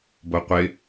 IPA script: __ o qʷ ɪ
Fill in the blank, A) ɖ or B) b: B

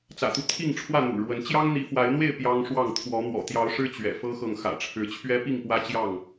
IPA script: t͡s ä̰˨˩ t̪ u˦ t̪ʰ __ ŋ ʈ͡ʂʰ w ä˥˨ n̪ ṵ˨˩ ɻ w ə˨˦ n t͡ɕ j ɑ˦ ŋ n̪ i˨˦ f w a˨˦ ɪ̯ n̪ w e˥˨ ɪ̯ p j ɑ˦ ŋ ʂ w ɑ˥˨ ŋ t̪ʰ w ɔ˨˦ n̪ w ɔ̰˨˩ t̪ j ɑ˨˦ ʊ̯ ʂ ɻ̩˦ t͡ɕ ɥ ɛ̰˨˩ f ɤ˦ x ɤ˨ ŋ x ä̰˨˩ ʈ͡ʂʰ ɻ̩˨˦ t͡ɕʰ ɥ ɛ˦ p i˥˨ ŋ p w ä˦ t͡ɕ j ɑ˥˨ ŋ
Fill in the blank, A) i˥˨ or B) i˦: A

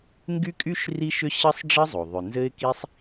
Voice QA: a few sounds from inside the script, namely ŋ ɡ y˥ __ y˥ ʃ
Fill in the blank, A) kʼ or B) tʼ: A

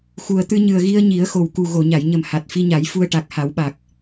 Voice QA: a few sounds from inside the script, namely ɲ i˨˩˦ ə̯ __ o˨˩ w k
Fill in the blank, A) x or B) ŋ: A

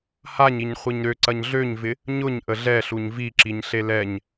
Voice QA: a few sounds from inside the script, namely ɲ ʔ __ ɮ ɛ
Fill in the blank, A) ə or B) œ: A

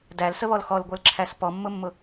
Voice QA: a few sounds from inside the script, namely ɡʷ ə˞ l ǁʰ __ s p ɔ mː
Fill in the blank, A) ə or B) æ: B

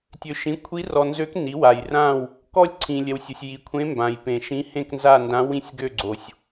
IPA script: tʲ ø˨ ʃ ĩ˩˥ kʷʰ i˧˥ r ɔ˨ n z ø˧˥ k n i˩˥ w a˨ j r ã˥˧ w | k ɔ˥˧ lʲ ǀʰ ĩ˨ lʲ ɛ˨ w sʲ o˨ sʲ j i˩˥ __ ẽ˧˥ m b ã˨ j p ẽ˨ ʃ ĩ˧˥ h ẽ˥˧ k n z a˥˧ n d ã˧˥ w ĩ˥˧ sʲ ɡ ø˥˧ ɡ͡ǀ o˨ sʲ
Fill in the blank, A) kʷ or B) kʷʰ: B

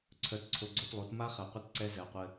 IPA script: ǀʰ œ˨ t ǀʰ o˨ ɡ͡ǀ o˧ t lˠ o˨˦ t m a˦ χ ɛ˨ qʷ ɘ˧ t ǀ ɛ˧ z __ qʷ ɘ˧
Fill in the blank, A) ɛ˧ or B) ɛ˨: B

